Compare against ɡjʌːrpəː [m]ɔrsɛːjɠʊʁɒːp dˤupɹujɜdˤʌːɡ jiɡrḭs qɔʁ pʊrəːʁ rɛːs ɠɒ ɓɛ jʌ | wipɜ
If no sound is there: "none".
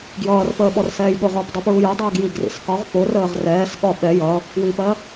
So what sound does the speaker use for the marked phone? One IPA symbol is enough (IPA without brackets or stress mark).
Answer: ɓ